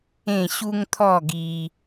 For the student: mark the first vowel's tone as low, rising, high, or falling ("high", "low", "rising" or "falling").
falling